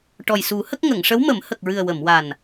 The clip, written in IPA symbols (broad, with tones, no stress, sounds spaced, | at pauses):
ʈ ɔ˨˩ j s u˨˩˦ h ə˦˥ k̚ ŋ ə˨˩˨ ŋ ʂ ə˧˥ w m ə˨˩˦ m h ə˨˩ k̚ ɹ ɨ˨˩ ə̯ w ə˨˩˨ m w a˨˩ n